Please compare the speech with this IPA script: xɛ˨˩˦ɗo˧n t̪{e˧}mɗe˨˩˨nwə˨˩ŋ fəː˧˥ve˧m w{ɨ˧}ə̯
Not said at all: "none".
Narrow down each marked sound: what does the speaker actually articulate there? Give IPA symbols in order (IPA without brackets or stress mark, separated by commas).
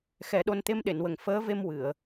e˧, ɨ˨˩˨